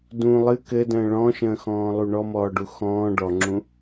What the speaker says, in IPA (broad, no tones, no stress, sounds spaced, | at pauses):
d ũ lˠ ɨ k ɘ d ə̃ː ɭ ɔ̃ ʃ ə̃ː x ɔ̃ː lˠ u ɳ ɔ m ɔː ɖ u x ɔ̃ː ɖ ɔ ŋ͡ǁ ũ